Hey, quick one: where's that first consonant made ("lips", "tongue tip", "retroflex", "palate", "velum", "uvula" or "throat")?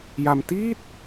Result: palate